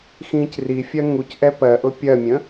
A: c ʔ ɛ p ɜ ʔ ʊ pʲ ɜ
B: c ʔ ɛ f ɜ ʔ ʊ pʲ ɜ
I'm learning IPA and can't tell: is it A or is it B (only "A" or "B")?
A